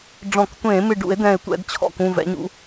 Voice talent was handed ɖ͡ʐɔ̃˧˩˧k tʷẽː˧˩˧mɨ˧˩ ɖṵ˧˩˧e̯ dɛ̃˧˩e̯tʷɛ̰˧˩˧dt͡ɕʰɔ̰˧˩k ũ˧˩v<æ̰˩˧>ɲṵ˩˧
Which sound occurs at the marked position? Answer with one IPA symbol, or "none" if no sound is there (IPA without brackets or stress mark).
ɛ̰˩˧